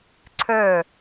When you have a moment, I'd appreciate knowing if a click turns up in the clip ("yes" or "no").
yes